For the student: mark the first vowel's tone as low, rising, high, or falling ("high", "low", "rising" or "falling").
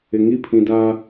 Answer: low